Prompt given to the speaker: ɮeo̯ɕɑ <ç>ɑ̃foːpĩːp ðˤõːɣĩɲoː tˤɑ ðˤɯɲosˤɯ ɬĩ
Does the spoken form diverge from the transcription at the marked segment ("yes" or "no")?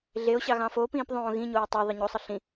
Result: yes